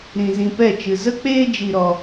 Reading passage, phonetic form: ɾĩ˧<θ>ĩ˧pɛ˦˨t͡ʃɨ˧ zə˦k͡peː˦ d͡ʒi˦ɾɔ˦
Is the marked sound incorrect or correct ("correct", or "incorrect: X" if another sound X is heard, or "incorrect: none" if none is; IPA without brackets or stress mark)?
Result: incorrect: z